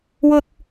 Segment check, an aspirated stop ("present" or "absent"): absent